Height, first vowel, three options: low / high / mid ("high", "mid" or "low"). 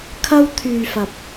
low